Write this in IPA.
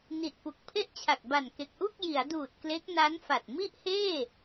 n i˨˩ t̚ p u˨˩ k̚ pʰ e˥˩ ʔ t͡ɕʰ a˨˩ k̚ b a˨˩ n k e˨˩ k̚ ʔ u˥˩ k̚ j i˩˦ a̯ d uː˨˩ t̚ k l e˦˥ k̚ n a˦˥ n f a˨˩ t̚ m i˥˩ ʔ h eː˥˩

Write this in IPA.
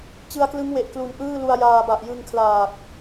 t͡ɕ ɯ˧ a̯ k l ɯ˦˥ ŋ w e˨˩ ʔ k l u˨˩ n ʔ ɯː˥˩ l u˧ a̯ j aː˧ b a˨˩ ʔ j ɯ˧ ŋ kʰ l aː˨˩ k̚

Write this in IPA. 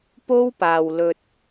p o˥ w p aː˨ w l ɵ˨ t̚

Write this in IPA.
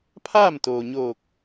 pʰ aː˥˨ m t̪ oː˩ ɲ oː˧˩ k̚

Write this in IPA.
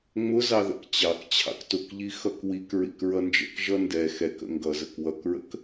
ŋ͡m ʊ z ɑ ð ə̰ k t͡ɕ ɑ k t͡ɕʰ ɑ̰ k t ʊ k ʎ i x ʌ k w i k ɹ ḭ k ɹ ʌ n d͡ʒ ə̰ k ʒ ʌ n d ɛ x ɛ k ə̰ ŋ ɡ ʌ z ə k w ʌ k ɹ ə̰ k

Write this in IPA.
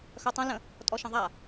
x œ tˤ ə̃ l ə̃ | tʼ ɔ ʃ ə̃ ðˤ a

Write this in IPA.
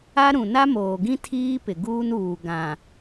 a˦ ɾ ũ˨ n a˦ m oː˨ ɡ ĩ˦ tʰ iː˦ p ɪ˨ ɡ uː˦ n uː˨ ɡ ã˨

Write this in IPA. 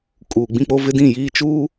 kʼ uː˨ ɡ͡b ĩ˦ k͡p o˦ v ɪ˦ d ĩ˦˨ j iː˦ t͡ʃ uː˦

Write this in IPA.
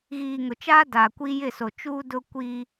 ɣ iː˨ ŋ ʊ˨ t͡ʃ aː˦ d aː˨ kʷ iː˦ j ɪ˦˨ s o˨ t͡ʃ uː˦ d ʊ˦ kʷ i˦

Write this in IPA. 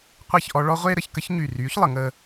qʷ e˥˩ ç ʔ ɔ˧ ɭ ɔ˥ ʁʷ e˥ ɾ ə˩˧ ç k ə˥ ç ɲ y˧˩ r yː˨˥ ç lˠ ə˩˧ ŋ əː˧

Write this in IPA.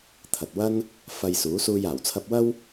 t̪ʰ ɐ˨ t̚ w ɐ˥ n | f ɐ˧ j s uː˨˥ s uː˧ j aː˨˩ w t͡sʰ ɐ˧ p̚ w ɐ˥ w

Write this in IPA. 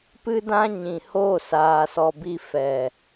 p ɨ˦ d ã˦ ɲ ĩ˨ h o˦˨ s aː˨ s ɔ˨ b i˧ f ɛ˨

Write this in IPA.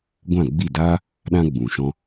ɡʷ ã˦˨ ɡ͡b i˦˨ d aː˦ | ɗ ã˧ ɡ͡b ũ˨ ʃ ɔ̃˦

